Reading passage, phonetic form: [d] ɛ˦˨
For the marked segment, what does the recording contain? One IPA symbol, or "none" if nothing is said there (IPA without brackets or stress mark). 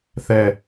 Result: θ